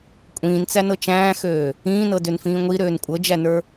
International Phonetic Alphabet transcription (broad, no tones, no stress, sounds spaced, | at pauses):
kʷʼ ĩː n t͡s æ n ɤ t͡ʃ æ̃ː x øː | ĩː n ɤ d ø n f ĩː ŋʷ i ɾ øː n kʷʼ ɤ d͡ʒ æ n ə˞